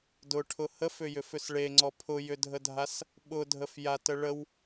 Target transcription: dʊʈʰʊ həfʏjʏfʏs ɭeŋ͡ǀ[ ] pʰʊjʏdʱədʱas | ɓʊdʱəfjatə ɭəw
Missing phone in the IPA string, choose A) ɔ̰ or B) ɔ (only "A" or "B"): B